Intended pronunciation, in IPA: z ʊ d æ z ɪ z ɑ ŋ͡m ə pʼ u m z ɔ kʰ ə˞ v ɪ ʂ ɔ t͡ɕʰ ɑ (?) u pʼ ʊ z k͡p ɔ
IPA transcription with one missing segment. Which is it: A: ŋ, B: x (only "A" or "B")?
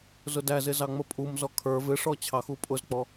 B